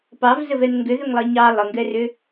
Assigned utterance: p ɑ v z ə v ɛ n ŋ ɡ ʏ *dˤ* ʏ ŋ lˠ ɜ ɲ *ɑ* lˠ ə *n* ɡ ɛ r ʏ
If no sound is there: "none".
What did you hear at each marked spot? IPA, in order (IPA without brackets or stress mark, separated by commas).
ð, ɑ, ŋ